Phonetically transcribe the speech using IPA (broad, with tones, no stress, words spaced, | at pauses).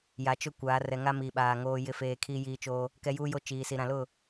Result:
ja˨ t͡ʃʊ˦kʷaː˨˦ rɛ˨ŋa˦ miː˨ɓaː˨ ŋoː˨jɪ˨feː˨ kʰiː˦jiː˦t͡ʃo˦ | kɛ˦juː˦jo˦ t͡ʃiː˨si˨ ɾã˨lʊ˦˨